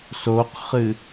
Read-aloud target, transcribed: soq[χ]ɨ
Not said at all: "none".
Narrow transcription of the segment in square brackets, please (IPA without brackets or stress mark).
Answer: χ